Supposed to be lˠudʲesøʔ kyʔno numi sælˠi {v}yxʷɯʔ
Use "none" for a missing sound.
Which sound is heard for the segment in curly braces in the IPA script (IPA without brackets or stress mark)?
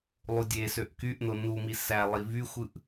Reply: v